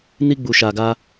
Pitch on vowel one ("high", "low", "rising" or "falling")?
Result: high